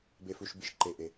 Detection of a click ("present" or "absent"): present